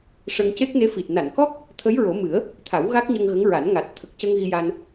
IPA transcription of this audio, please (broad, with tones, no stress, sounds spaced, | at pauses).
ʂ ə˧ ŋ c e˦˥ k̚ n e˧˥ f i˨˩ t̚ n a˨˩˨ n k ɔ˦˥ k̚ | t̪ʰ ə˧˥ j ɹ o˨˩˦ m ɨ˨˩˦ ə̯ | t̪ʰ a˨˩˦ w ɣ a˦˥ k̚ ɲ ə˧ ŋ ɣ ə˧˥ ŋ ɹ a˨˩˦ n ŋ a˨˩ t̚ t̪ʰ ə˨˩ k̚ c ə˧ ŋ ɣ i˧ j a˧ n